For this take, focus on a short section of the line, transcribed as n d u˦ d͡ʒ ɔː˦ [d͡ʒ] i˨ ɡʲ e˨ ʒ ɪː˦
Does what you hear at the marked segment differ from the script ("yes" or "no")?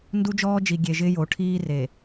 no